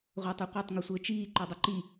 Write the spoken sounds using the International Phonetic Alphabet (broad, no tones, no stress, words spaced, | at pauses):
ʁʷætˤɘqʷœtˤ ŋɵsʷəːt͡ʃiː ǃœdˤəǃi